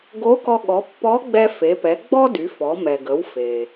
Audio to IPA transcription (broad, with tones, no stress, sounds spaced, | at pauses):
ɡ o˧˥ k ɔ˧ ɠ ɔ˩˧ pː ɔ˧˥ ɡ͡b ɛ˧ f e˩˧ p ɛ˩˧ ɡ͡b ɔ˥ d y˩˧ f ɔ˩˧ m ɛ˩ ɡ ə˩˧ w f e˩